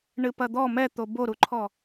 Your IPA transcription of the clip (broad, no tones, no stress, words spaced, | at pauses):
ɳɨpɐd̪ɔ mɛt̪o boɾuǃʰɔ